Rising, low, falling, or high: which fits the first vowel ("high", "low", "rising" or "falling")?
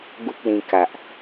high